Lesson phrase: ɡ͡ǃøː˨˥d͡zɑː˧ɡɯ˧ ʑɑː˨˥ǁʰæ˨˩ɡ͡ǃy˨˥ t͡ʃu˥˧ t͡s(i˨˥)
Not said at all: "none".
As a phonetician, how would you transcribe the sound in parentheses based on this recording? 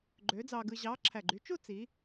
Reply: i˨˥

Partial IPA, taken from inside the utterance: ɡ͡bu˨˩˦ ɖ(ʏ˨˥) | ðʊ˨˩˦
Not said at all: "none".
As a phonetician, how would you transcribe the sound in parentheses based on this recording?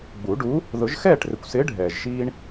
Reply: u˨˥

